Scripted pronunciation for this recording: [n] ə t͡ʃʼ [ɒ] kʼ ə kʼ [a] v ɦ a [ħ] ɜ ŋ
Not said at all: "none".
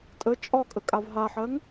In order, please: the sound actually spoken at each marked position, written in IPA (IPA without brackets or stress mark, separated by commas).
tʼ, ɒ, a, ħ